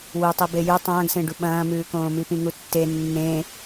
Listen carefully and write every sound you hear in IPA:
w ɨ tˤ i b e j ʉ tˤ ɐ̃ː ɡ s ẽ ɖ u ɓ ɐ̃ː m ʉː k õː m i p ĩ ŋ u tː e nː ẽ

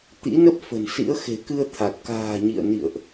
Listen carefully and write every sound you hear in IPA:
t̪ ḭ˧˥ n ə˦˥ p̚ f ə̤˨˩ n s ḭ˧˥ ə̯ x e̤˨˩ k ɨ˧ ə̯ t̪ʰ a˨˩ t̚ k a̤ː˨˩ ɲ ḭ˧˨ ə̯ n ḭ˧˨ ə̯ ʔ

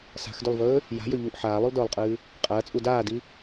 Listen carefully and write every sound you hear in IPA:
s a̤ x d ʉ lˠ v ɵː | j a̤ j ɵ ʎ u ʔ ħ aː lˠ ʉ lˠ d ɵː lˠ qʼ ɨː | qʼ ɐː t͡sʼ u d aː d i

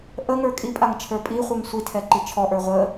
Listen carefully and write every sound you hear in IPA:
ʔ ə ŋ ə˞ kʼ i pʼ a ŋ t͡ʃʰ ə˞ pʼ i χʷ ɯ ŋ sʷ i tʰ ɛ ǃ i t͡ʃʰ ɔ ʔ ə˞ ʁʷ ə

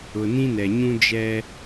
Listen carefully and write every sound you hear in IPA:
ʊ˨ n ĩ˦ n ɛ˨ ɲ ũ˦ d͡ʒ ɛ˦

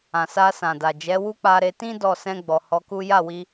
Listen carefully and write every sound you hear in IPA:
ã˨ s a˧ s ã˨ d a˨ d͡ʒ ɛ˨˦ w u˦ k͡p a˧ ɾ e˧ t ĩ˦ d ɔ˦˨ s ɛ̃˧ ɡ͡b ɔ˨ h ɔ˨˦ k u˦ j a˦˨ w i˧

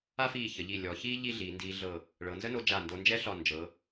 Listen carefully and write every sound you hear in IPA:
a˥ f iː˧˩ ç ə˩˧ ʎ i˧˩ lʲ ɔ˩˧ ç iː˥ ʎ i˥˧ ɮ iː˩˧ n d iː˧ ɮ ɤ˧˩ | ɭ ɤ˩˧ n z ə˥ n o˧ d͡ʒ a˧˩ n d o˧ n d͡ʒ ɛ˥ ɬ ɒ˧˩ n d͡ʒ ɤ˩˧

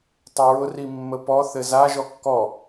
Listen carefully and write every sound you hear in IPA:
tˤ ʊ ɹ ʊ r i mː ə p ɔ θ ɘ z a ʒ ɔ kː ɔ

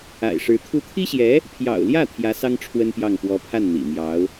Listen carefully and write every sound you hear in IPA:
a̰˨˩ ɪ̯ ʂ ɻ̩˧˥ t̪ʰ u˧˥ t̪ʰ i˥ ɕ j ɛ˧˥ | pʰ j ɑ̰˨˩ ʊ̯ l j ä˥˩ t̪ʰ j ä˧˥ s ɑ˥ ŋ ʈ͡ʂʰ w ə˥ n p j ɑ˥˩ ŋ p w ɔ˧˥ pʰ a˥˩ n n̪ ḭ˨˩ m j ɑ˧˥ ʊ̯

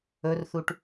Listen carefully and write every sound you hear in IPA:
ɵ r θ u ʈ

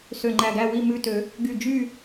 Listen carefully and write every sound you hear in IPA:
s ø˧˩ ŋ͡ǃ æ˧˩ ɡ æ˥˨ w i˥˨ m ʉ˧˩ t ø˨˩˦ | ɡ y˧˩ d͡ʒ y˥˨

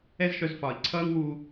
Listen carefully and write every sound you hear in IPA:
ɛ˥ z ʃ œ˧ z f ɒː˩ i̯ ǀʰ ʌː˥ ŋ w u˧

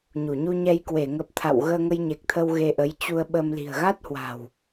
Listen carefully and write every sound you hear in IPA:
ɲ u˧˩ ɲ u˧ ɲ ɛ˧ j k w e˧˩ ŋ ə˨˩ p̚ t̪ʰ a̰˧˨ w ɣ əː˧ ŋ ə˧ j ɲ e˨˩ k̚ t̪ʰ ə˧ w ɣ e˧ ʔ ə˨˦ j t͡ɕ u˧ ə̯ ɓ ə˧ m l i̤˨˩ ə̯ ɣ a˦˥ t̚ h w a̤˨˩ w

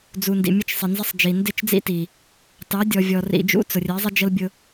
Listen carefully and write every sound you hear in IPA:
d͡z u˨ n d ḭ˨ mʲ ə˦ t͡ʃ sˤ ɪ˨ n z ɪ˦ sˤ d͡ʒ i˨ n d ɪ˦˨ t͡ʃ d͡z ḭ˦ t i˨ | t ɑ˨˦ dʲ ɔ˨ vʲ ɔ˨ r ḭ˨ d͡ʒ ṵ˦ t͡s ʊ˨ rʲ ɛ˨˦ zˤ ɪ˦ d͡ʒ ə˦ l bʲ ʊ˦

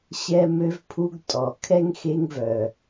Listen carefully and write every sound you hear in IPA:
ɕ ɛ˦ m ø˦ v pʰ u˦ ɡ tʼ ɔ˨ kʰ ɛ˦ ŋ x e˦ ŋ v œ˨

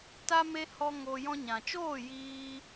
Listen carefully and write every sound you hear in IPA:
t a˧ m e˧ h ɔ˦ ŋ o˧ j ɔ̃˧ ɲ ã˨ t͡ʃ oː˦˨ j iː˧

